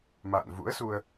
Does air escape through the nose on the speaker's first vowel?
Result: no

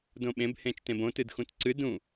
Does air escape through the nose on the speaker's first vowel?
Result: yes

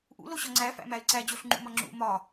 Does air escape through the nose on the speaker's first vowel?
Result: no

